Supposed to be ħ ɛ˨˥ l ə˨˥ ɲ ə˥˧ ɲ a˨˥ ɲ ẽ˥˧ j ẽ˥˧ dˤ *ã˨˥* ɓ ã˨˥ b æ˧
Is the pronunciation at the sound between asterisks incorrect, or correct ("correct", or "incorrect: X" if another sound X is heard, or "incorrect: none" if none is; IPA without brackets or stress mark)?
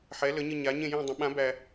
incorrect: ə̃˨˥